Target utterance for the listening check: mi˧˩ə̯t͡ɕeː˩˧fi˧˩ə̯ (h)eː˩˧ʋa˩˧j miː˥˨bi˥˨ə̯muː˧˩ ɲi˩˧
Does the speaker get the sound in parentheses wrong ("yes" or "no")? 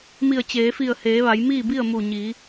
no